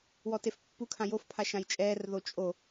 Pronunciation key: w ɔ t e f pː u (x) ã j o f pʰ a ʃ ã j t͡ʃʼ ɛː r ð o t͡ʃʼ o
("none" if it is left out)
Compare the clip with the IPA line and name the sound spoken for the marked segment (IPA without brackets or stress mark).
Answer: kʰ